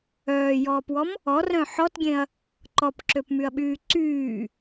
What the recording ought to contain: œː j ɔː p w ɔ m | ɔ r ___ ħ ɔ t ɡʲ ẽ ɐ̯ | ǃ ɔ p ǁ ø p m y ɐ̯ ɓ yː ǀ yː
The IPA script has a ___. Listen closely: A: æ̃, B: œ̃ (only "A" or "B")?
B